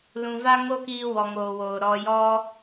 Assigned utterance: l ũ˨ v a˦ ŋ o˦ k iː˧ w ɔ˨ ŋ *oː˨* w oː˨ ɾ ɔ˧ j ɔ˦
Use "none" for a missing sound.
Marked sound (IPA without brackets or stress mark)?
oː˨